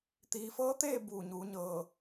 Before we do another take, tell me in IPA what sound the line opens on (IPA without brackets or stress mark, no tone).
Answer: t̪